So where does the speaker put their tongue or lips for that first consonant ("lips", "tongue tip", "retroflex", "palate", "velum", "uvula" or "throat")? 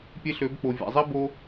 lips